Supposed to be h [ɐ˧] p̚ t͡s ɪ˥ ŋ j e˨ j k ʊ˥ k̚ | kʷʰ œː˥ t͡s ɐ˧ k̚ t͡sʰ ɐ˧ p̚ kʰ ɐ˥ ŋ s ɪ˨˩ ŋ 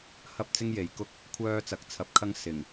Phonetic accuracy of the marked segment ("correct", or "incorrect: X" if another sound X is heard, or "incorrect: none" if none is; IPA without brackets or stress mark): incorrect: ɐ˥